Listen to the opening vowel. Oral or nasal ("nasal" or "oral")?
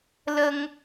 oral